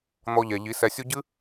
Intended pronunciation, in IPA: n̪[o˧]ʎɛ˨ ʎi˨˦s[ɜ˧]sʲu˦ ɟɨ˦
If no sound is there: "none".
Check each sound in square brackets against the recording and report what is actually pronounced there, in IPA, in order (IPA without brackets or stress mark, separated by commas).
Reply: ɔ˧, ɛ˧